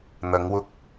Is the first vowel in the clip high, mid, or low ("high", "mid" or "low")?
low